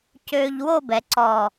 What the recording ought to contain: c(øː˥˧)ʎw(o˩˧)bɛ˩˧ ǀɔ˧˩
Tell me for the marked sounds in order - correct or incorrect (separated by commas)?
incorrect, incorrect